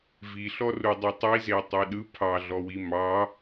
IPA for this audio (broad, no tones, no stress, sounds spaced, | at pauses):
v i ɬ ɔ r u dˤ e tˤ i z e tˤ e ɗ ɯ pʰ ɑ ɮ ɔ w i m ɑ